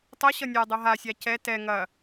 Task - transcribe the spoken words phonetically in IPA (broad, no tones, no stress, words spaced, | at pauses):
tˤʌɕʌ nʲadˤʌ ɦasʲa cɛ tɛ ŋɐ